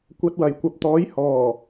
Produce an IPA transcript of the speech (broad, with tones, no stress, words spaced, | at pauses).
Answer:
kʷɐ˧t̚wɐ˨˩jkʷɐ˨p̚ t̪ɔː˨˥jhɔː˨˩